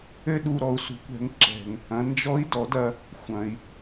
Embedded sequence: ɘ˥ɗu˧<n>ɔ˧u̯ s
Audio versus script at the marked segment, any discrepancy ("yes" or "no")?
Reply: yes